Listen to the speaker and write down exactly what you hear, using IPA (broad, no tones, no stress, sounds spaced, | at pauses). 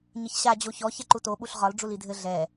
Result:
ɲ ɘ ç ɕ a d͡ʑ o ç ɔ ç ɛ ǃ u t o ɓ u ɬ ʁ ɒ l ɖ͡ʐ u l i dʱ ɘ ɮ ɛ